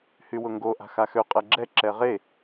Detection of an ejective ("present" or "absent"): present